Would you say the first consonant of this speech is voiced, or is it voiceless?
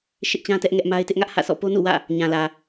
voiceless